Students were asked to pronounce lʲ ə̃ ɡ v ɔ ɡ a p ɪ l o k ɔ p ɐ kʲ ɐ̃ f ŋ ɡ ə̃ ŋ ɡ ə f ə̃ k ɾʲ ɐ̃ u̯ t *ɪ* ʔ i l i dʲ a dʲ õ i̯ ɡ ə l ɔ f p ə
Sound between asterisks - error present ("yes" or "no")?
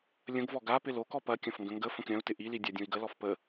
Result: no